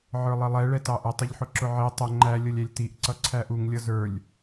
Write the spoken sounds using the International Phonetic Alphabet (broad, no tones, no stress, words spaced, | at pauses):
ʕə˞lˠilˠɛ ɭɛtɑʔə tˤɪʎħʊǁʊʕi tˤə ŋ͡ǃæ lʲʌlʲælʲtiʔ ǀʌǀʰæʔuŋ lʲʌzə˞lʲ